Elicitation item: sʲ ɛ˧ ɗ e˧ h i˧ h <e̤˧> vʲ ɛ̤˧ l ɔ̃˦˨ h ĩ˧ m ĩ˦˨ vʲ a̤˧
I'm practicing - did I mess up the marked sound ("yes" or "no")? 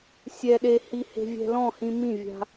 no